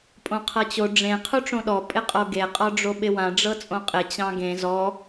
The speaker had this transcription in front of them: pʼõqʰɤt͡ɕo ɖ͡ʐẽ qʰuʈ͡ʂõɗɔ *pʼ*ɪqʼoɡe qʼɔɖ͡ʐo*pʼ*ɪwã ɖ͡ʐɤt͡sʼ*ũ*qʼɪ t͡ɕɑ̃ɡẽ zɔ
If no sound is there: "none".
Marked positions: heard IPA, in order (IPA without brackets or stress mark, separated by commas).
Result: pʼ, ɓ, õ